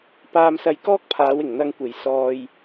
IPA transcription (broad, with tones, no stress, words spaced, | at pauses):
paː˧msɐ˧jkɔː˥k̚pʰaː˨˧w ɪ˨˩ŋ n̪ɐ˧ŋkʷe˨˩j sɔː˨j